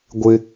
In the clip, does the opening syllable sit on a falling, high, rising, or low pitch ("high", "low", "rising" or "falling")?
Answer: high